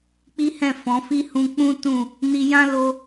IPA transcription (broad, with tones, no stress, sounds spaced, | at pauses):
k͡p i˦ h ɛ̃˦˨ f ɔ̃˨˦ f i˦ h ũ˧ k͡p ũ˦ t ũ˦˨ | n i˧ j ã˦ l o˧